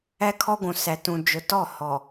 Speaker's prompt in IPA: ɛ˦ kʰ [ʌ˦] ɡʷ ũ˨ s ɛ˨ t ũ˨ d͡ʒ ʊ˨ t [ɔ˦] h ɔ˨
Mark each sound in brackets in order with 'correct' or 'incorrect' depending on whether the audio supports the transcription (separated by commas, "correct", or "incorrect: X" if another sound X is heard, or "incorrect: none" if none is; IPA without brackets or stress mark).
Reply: incorrect: ɔ˦, incorrect: ɔ˦˨